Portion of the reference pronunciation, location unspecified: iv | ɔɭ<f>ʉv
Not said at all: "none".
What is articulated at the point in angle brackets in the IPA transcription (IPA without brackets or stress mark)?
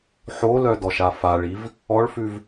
f